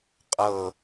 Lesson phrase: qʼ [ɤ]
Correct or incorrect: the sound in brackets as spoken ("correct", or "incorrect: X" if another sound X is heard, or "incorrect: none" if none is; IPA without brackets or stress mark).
correct